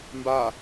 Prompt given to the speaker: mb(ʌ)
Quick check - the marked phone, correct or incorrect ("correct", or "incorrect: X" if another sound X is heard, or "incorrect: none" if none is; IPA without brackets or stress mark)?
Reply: incorrect: a